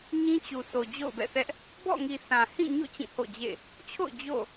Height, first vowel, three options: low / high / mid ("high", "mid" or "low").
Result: high